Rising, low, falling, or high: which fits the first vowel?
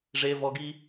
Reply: high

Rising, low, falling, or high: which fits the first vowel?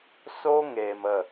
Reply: high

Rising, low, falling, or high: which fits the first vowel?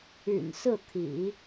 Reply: low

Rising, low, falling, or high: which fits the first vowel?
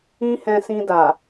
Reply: high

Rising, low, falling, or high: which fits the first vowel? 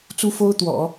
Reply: high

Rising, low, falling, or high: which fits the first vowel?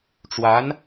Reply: rising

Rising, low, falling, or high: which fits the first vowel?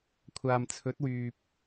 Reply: low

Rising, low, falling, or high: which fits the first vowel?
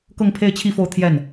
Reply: falling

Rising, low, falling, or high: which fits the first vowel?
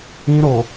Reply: high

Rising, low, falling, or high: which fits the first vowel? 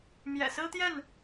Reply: low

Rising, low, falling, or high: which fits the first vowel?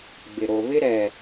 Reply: low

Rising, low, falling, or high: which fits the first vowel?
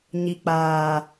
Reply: low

